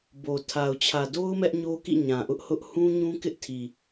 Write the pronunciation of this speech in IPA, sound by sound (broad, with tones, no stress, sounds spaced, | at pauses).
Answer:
b o˨ tʰ a˨ ʊ̯ t͡ɕʰ ä˨ d o˦ ʊ̯ m ɛ˦ ʔ ɲ o˦ k ḭ˦˨ ɲ ã˨ ʔ ʊ˦ ʔ h ʊ˦ ʔ h ũ˦ ɲ ũ˦ k ɪ˦ ʔ tʰ i˨